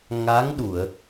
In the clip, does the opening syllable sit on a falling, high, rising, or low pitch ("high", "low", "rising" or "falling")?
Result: rising